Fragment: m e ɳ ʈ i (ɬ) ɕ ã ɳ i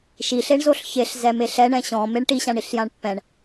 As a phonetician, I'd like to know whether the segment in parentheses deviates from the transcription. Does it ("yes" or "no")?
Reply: yes